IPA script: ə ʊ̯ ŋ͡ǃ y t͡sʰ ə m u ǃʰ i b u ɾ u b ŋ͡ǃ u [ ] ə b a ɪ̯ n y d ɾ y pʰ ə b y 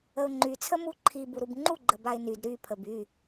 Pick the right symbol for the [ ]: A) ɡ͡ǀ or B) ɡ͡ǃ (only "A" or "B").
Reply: B